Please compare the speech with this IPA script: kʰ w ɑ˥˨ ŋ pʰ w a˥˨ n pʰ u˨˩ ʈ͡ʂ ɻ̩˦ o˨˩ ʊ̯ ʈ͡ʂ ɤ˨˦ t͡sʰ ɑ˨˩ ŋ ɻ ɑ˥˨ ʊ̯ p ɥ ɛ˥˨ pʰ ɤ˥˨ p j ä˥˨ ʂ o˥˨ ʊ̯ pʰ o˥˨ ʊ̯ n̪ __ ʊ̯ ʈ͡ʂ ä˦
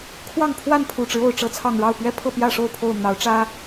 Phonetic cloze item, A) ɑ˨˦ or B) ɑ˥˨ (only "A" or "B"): A